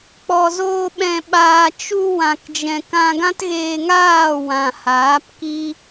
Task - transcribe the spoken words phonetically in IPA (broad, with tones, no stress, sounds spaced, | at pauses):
k͡p ɔ˨ z oː˧ ɓ ɛ̃˨ ɓ aː˨ t͡ʃ u˧ w ã˨ k d͡ʒ ɛ̃˨ k ã˧ ɡ ã˦ t ɣ eː˧ ŋ aː˦˨ w ã˨ h aː˨˦ p k i˦